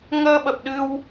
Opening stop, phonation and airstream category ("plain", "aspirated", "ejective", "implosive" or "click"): implosive